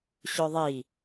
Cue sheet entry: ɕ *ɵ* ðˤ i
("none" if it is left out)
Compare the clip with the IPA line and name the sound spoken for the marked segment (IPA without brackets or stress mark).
ɵ